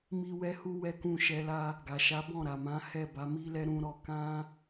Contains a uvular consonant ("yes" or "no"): no